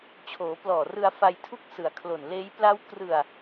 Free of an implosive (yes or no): yes